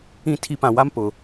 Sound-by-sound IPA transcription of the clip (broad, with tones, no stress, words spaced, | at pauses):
ĩ˦˨tʰi˦ pã˨ wa˦m pʊ˨